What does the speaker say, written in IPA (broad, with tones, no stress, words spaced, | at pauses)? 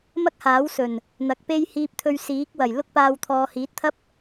mɐ˥k̚haː˨˥wsɵ˨˩n | n̪ɐ˨˥k̚pe˥j hiː˧p̚t̪ʰɵ˧ɥsiː˨˥k̚ wɐ˨˩jlʊ˥k̚paː˧w t̪ʰɔː˨hiː˨˥t̚t̪ʰɐ˥p̚